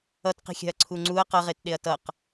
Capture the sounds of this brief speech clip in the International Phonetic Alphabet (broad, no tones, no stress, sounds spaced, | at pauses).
ʌ t q i̤ xʲ a̤ ɐ̯ ǀʰ u ŋ͡ǀ u ɐ̯ q ʌ ʁ e t ɗ e ɐ̯ t ʌ q